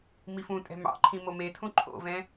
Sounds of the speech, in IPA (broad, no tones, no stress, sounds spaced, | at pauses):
m i f ũ tʼ ɛ̤ m ɑ̰ ǃʰ ĩ m o m e tʰ ũ ǃʰ o̰ v ɛ̃